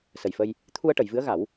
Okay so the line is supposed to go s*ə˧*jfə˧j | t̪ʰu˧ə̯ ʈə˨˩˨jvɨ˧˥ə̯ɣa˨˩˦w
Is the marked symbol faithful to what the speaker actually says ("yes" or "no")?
no